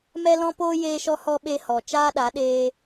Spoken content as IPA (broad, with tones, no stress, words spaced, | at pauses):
mɛ˦lɔ̃˦poː˦ jeː˦ʃɔ˦hɔ˦ ɓe˧hɔ˨ t͡ʃaː˦ɗa˨˦ ɗeː˦